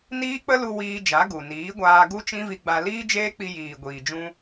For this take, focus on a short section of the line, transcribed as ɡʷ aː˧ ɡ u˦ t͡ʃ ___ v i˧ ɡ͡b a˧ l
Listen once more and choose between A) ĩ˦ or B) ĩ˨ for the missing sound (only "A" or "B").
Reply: A